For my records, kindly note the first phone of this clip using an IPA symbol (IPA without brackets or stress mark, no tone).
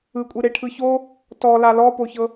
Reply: ɯ